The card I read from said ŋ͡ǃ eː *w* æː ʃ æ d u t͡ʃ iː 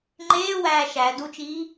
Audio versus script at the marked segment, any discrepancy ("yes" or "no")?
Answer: no